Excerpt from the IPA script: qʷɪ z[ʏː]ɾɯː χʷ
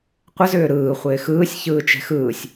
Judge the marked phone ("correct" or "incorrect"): correct